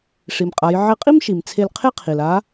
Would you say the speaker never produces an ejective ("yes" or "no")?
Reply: no